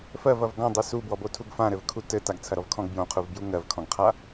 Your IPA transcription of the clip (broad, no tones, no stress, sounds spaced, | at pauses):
f ɜ v ɐ v ɡ ɔ̃ dˤ ɘ s u b w ɔ b o tʰ u ɡ f ã ɾ ɘ v kʰ u t ɘ t a ɡ t͡sʰ ɐ ɾ ɔ v kʰ ɔ̃ ɡ b j õ qʰ u v b j u ŋ ɜ v kʰ ɔ̃ ɡ qʰ a